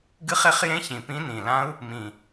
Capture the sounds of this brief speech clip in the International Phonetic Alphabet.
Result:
ɡ ɨ˦˥ χ e˦˥ χ j ẽ˦˥ ç ĩ˨˩ p ĩ˦˥ n ĩ˨˩ l ã˦˥ u̯ | m ĩ˨˩

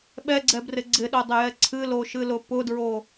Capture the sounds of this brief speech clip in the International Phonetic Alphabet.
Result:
ɓ ɛ ɡ͡ǀ ɛ b r ɪ ɡ͡ǀ ɪ ɗ o dˤ ɪ j ɛ ǀʰ ɨ l o ʃ ɨ l ʊ p ʊ d ɹ o

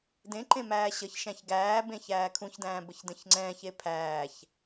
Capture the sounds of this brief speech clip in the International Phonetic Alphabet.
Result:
d ẽ ǃ ẽ m æː ɕ ə ç ʃ æ̃ ç ɡ æː b ẽ ç æː kʰ ũ ç d æ̃ː b ə ç d ə̃ ç ŋ͡ǀ ɛ̃ː ç e pʰ æː ç

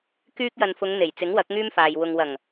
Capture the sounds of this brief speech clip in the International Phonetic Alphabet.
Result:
k yː˥ k̚ j ɐ˧ n f ʊ˨˧ ŋ n̪ e˨˩ j t͡s ɪ˨˥ ŋ w ɐ˨˥ k̚ ŋ yː˥ m f aː˨ j w ʊ˧ ŋ w ɐ˨˩ ŋ

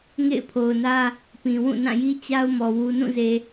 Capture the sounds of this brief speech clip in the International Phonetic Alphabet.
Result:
ŋ ḛ˦˨ ɪ̯ pʰ o˨ ʊ̯ n ä˦ | p ĩ˨ w ũ˦˨ n ã˦˨ j i˦ t͡ɕ a˦ ʊ̯ m ɔ˨ w u˨ n ũ˦˨ z e˨

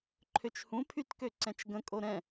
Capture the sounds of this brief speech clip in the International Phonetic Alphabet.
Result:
ǃʰ ø t͡ʃ h ũ pʰ y t k ø ǀ ɛ̃ t͡ʃ ɡ ə̃ kʼ o ɾ ɛ̃

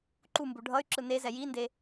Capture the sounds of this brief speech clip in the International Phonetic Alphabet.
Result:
ǃ u m b u ɖʱ ʌ y̯ ǁ ɯ n e z ɛ j i n d e

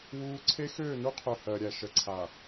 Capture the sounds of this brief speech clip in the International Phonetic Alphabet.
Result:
w uː˦ ǀʰ e˦ x øː˦˨ n u˦ qʰ ø˨ h ɜ˨ ɾʲ æ˨ ʃ ə˨ ǀʰ a˨

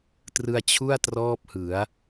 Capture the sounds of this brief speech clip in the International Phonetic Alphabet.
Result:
t r ɯ˧ a̯ t͡ɕʰ u˥˩ a̯ t r ɔː˥˩ p̚ h ɯ˩˦ a̯

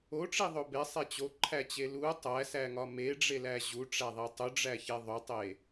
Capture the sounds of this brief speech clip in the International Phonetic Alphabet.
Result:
o ʈ͡ʂ i ðˤ o b e sˤ e t͡ɕ o ǃʰ æ t͡ɕ e l u tˤ æ s æ ŋ ɒ m e ɖ͡ʐ e l æ ʑ u ʈ͡ʂ æ ðˤ i tˤ u ɖ͡ʐ æ ç e ðˤ o tˤ e

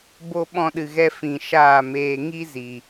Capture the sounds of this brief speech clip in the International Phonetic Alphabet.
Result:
b o˧ ɓ ɔ̃˧ ɗ ɨ˨ ɣ ɛ˧ f ĩ˨ ʃ aː˦˨ m eː˧ ŋ i˦ z i˨

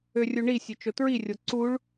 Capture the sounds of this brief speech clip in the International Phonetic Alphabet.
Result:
ø rʲ u ɳ i sʲ ø t͡ʃ o t ɹ i rʲ o ǀ u ɭ

